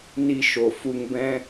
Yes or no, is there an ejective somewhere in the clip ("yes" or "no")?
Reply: no